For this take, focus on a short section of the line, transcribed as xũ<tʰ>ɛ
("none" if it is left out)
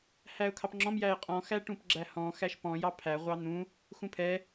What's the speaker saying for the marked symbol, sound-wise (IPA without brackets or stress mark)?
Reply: pʰ